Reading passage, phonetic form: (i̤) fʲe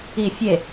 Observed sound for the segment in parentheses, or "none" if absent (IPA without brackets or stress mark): i